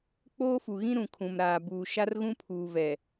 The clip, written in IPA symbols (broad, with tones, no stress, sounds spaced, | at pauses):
k͡p oː˦ f u˨ ɣ ĩ˦ ɾ ũ˨ kʰ ũ˨ m ɾ aː˨ b uː˨ ʃ a˦ r ɣ ũ˦ pʰ uː˨ v ɛ˨